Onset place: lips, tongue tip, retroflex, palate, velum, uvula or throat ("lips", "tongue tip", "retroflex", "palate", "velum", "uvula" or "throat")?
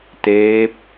tongue tip